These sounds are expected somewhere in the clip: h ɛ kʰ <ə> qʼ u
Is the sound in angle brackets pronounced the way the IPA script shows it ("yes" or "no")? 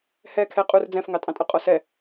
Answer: no